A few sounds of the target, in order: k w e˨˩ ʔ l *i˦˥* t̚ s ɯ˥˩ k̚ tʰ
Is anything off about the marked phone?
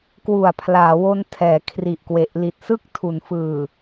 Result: yes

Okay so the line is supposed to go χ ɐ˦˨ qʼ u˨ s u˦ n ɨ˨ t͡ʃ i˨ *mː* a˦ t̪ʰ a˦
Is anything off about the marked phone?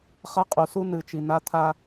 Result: yes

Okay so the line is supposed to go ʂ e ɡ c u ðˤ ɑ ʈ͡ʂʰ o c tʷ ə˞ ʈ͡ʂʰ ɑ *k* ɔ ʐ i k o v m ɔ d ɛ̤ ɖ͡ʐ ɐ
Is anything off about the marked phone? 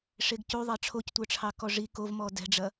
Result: no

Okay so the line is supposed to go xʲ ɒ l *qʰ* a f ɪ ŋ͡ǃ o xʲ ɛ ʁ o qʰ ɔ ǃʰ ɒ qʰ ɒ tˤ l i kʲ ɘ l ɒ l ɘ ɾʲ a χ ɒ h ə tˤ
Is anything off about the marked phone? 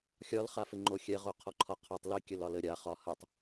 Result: yes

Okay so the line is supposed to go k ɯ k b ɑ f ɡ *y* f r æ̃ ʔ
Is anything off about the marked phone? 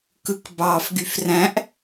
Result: no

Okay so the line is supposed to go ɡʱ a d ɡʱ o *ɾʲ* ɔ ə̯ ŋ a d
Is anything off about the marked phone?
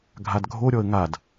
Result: no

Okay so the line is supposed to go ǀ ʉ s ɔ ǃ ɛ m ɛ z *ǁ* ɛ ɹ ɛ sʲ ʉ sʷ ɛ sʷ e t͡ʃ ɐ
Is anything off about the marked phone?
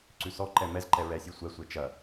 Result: yes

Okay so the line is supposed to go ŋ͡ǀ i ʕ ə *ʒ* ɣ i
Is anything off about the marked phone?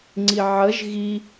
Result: no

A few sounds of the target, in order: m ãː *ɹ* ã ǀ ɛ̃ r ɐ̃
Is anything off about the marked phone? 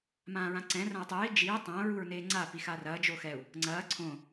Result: no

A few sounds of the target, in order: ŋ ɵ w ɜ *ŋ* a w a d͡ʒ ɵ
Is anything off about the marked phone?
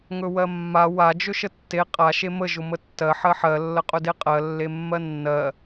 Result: yes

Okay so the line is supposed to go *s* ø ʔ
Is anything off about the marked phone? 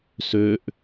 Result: no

